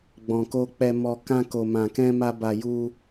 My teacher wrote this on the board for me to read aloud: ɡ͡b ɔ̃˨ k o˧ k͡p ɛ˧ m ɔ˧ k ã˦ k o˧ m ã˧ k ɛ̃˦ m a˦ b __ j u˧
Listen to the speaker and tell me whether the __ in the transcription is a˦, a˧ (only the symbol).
a˧